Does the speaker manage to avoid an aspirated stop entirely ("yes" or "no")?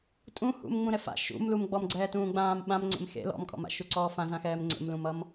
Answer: yes